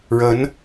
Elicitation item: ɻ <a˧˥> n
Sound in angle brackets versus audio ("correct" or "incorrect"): incorrect